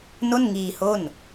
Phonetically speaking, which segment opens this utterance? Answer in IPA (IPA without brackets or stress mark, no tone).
n